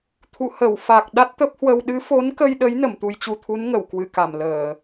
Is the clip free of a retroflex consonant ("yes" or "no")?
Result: yes